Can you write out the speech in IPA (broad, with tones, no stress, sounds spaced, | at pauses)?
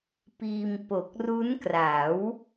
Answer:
p iː˧ m p o˨˩ k̚ r u˦˥ n k r a˩˦ w